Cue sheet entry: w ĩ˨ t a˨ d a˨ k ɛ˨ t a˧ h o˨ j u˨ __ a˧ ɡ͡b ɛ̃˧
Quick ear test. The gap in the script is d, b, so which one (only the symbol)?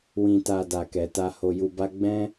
b